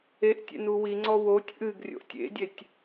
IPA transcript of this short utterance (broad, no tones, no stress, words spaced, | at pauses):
eʔtʲḛ nuwiŋ͡ǀɔ wotʲ ʔɨɡrʲo̰ʔ tʲḛdʲetʲ